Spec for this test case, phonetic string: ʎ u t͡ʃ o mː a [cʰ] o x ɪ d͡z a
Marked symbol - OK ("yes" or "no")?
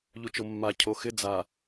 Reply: yes